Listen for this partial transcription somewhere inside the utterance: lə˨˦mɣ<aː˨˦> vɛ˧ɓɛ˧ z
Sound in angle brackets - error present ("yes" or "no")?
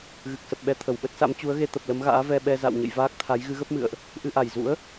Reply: yes